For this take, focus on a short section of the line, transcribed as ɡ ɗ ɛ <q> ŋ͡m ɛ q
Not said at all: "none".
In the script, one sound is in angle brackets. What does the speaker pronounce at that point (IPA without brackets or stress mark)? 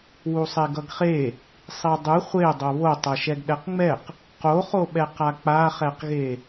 q